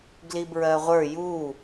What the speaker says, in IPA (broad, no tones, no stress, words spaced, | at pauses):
ɡlibɹɜʁʷə˞ ju